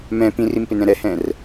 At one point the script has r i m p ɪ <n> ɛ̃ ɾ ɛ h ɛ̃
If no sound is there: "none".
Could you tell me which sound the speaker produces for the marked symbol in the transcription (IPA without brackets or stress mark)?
n